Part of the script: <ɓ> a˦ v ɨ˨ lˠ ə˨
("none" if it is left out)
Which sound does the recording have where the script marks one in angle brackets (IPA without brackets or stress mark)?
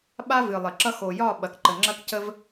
ɓ